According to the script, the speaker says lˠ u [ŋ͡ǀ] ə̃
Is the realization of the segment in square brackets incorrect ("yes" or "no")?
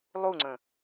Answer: no